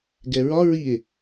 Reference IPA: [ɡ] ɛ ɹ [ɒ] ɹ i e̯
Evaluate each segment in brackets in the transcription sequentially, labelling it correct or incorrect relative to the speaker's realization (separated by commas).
correct, correct